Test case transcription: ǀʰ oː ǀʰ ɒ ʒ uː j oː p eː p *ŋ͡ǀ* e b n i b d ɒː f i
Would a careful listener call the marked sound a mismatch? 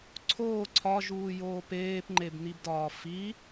yes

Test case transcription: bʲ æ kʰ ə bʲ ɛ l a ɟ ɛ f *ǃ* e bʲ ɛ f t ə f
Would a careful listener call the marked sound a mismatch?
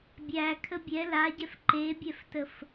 no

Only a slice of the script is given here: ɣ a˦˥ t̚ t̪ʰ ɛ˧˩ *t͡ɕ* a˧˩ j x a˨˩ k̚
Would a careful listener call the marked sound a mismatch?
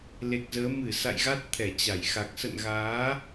no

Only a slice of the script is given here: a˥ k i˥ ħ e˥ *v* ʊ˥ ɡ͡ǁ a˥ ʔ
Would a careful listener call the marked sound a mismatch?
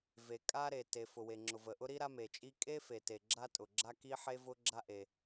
no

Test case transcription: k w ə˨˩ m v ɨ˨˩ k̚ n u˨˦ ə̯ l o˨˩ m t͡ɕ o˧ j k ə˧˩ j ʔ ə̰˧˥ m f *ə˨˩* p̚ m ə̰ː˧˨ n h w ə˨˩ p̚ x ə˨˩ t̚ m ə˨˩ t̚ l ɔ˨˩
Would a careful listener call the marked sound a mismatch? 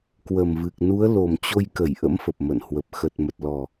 no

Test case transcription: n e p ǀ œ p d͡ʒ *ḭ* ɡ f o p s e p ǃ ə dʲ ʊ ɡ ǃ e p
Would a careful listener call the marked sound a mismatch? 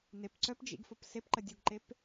no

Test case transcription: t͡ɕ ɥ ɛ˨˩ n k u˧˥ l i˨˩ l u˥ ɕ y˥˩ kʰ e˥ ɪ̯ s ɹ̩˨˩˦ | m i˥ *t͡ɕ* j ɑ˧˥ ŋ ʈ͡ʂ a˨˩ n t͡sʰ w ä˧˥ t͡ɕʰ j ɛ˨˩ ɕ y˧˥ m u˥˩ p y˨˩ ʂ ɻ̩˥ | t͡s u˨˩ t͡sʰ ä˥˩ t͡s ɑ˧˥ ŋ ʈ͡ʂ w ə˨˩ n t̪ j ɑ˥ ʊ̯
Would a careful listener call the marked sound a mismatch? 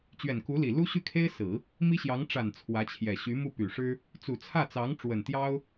yes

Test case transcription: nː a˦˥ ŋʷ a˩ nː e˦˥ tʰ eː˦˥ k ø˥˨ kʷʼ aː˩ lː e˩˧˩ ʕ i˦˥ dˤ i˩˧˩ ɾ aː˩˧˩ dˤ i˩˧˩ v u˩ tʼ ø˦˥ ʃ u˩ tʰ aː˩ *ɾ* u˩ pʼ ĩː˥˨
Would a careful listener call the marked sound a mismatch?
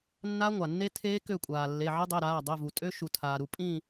no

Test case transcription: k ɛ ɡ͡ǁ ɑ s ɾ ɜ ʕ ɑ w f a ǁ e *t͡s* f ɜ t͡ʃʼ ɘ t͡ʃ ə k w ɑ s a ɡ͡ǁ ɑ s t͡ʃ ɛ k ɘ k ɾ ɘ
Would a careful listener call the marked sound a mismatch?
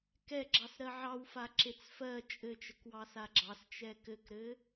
no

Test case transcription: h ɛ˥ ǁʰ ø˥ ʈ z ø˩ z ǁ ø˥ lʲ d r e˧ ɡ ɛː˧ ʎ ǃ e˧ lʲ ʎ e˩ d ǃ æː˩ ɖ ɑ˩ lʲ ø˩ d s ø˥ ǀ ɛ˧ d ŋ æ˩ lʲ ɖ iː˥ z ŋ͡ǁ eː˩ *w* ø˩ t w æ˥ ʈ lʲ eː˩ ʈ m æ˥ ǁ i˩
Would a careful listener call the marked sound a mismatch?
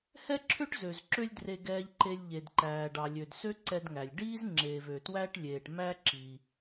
yes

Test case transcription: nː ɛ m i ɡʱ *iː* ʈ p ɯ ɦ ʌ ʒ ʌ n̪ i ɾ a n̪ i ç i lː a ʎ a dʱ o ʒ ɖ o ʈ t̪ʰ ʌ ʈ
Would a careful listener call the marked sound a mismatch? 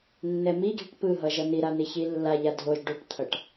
yes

